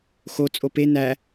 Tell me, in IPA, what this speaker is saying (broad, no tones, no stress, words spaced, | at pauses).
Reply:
xo t͡sʼope næ